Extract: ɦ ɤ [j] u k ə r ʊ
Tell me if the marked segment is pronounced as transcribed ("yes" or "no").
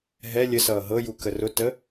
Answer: yes